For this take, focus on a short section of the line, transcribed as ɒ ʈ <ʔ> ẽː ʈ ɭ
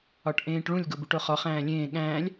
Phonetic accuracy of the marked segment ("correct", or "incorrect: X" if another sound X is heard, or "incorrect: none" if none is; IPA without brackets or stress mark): correct